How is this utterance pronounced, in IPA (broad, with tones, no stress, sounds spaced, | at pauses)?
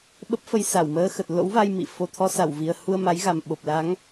ɓ ə˦˥ p̚ f ə˧ j s a˧˩ w m əː˧ x ə˨˩ t̚ l o̰˧˥ w v a˧ j m ḭ˧˨ f o˨˩ t̪ʰ ɔ˧ s a˧˩ w v i˨˩ ə̯ h u˧ ə̯ m a˨˦ j ɣ a˨˩ m ɓ o˨˩ p̚ l a˨˦ ŋ